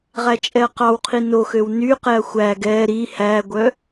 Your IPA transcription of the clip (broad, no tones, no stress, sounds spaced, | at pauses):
ʁ æ t͡ʃʼ ɛ ɐ̯ q ɑ w qʰ i n o x ø w n y q ɛ ɐ̯ xʷ æ ɡ ɛ ɾ i h æ ɡʷ œ